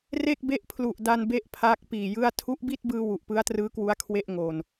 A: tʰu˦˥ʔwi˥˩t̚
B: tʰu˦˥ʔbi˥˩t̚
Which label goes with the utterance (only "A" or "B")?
B